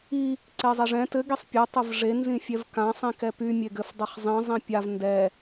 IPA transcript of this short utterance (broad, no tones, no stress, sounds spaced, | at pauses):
i | ǀ e zˤ e ʐ ɛ̃ t ɘ ɡ i sˤ pʲ ɛ tˤ ɘ v ʐ e n z ĩ fʲ ɛ v k ã sˤ ĩ k ɛ p y mʲ e ɡ ɘ f dˤ ɘ χ zˤ ĩ zˤ ĩ pʲ a v n d ɛ